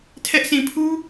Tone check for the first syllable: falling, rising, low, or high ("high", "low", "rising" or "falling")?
high